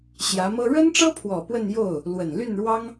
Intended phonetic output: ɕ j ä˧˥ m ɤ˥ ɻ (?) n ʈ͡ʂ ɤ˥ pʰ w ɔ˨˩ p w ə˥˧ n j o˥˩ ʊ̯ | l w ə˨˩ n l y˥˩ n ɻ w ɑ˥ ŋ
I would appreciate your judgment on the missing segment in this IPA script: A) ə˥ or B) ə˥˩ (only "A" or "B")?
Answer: A